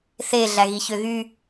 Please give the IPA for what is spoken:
θ e ɮ æ ɣ i ç ø ɣ y

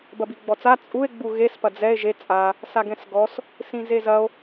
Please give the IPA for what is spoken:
b ɐ b i ɡ͡b ɔ t͡s a t͡sʼ u e̯ ɡ͡b u ɣ e s p ɐ d͡z ɛ e̯ ʒ e t͡sʼ a | s a ɡ ɛ̃ s ɡ ɔ s | s ĩ z e z ɐ o̯

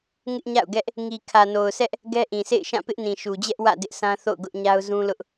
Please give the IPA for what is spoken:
ŋ ɪ˦ ʔ ɲ a̰˦˨ ʊ̯ ɡ ɛ˦ ʔ | ŋ i˨ kʰ ä˨ n o˨ ʊ̯ s ɛ˦ ʔ | ɡ ɛ˦ ʔ ĩ˨ s ḛ˦˨ ɪ̯ ʃ ã˦˨ p ɪ˦ ʔ n ĩ˨ ʃ u˨ d͡ʑ ɛ˦ ʔ w ä̰˦˨ d ɪ˦ ʔ sʰ ã˦ θ o̰˦˨ ʊ̯ ɡ ʊ˦ ʔ ɲ a˦ ʊ̯ z ũ˦ l ʊ˦ ʔ

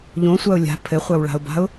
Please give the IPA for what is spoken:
ʎ õ sʷ a ʊ̯ lʲ a̤ pʰ ɘ χʷ a w ɭ a̤ ʊ̯ b a̤ ʊ̯

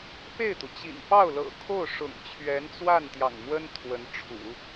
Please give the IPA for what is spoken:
p e˥˩ ɪ̯ t̪ u˩ t͡ɕ ḭ˨˩ n p ɑ˥˩ ʊ̯ l ɤ̰˨˩ kʰ o˥˩ ʊ̯ ʂ ʊ̰˨˩ ŋ t͡ɕʰ ɥ ɛ˧˥ n t͡s w a˥˩ n t̪ j ɑ̰˨˩ ŋ m w ə˥ n t̪ʰ w ə˧˥ n ʈ͡ʂʰ ṵ˨˩˦

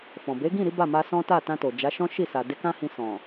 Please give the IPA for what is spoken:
f ɔ̃˨ b e˨˦ ɡ ĩ˦˨ ɾ i˨˦ b a˦˨ m a˧ s ɔ̃˦ t a˦˨ t ã˧ t o˨ d͡ʒ a˨˦ ʃ ɔ̃˦ ʃ i˦˨ s a˨ d e˧ k ã˦ h ĩ˧ s ɔ̃˨

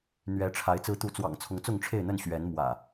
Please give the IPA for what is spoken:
n̪ ɥ ɛ˨˦ ʈ͡ʂʰ a˨˦ ɪ̯ t͡s ɹ̩˨˦ t̪ u˨˦ t͡s w ɑ̰˨˩ ŋ t͡sʰ ʊ˨˦ ŋ t͡s ʊ˥˨ ŋ ʈ͡ʂʰ e˥˨ ɪ̯ n̪ ə˥˨ n ɕ ɥ ɛ˨˦ n m w ä̰˨˩

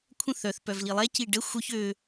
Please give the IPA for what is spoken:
kʷʰ ə̃ θ œ θ p œ v l i lˠ ɛ c i ɖ ə xʷ œ ç ø

